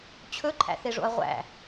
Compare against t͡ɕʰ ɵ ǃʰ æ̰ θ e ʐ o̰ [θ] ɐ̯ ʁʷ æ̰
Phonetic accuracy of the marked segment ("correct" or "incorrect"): incorrect